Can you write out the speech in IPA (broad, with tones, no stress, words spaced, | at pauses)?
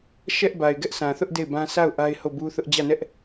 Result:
ʃɛ˦ʔba˨ɪ̯ ɡɛ˦ʔsʰã˨θʊ˦ʔ de˦˨ɪ̯bã˦ sʰa˦˨ʊ̯ ʔa˦ɪ̯ho˦˨bu˦θʊ˦ʔ d͡ʑä˦˨nɛ˦ʔ